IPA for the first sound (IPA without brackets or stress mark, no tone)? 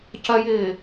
c